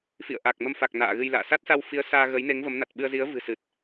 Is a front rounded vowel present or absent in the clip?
absent